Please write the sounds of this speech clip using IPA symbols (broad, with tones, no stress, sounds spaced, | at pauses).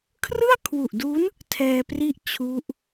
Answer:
kʰ r ɯ˥˩ a̯ kʰ w u˨˩ ʔ d u˦˥ n | tʰ ɛː˧ p r i˥˩ ʔ t͡ɕʰ u˦˥ ʔ